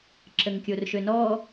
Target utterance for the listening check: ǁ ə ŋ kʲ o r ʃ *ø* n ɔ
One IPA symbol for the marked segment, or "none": ø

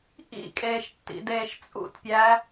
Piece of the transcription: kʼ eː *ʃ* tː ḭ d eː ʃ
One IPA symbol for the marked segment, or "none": ʃ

